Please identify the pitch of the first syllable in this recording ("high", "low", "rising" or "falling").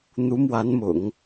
rising